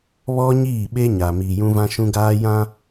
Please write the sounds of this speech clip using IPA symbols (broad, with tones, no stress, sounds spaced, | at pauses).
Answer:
β ɔ˦ ɲ iː˦˨ ɓ e˦ ɲ a˨ m iː˨ j ũ˦ v ã˦ ʃ ũ˦ ɡ aː˦ j ã˦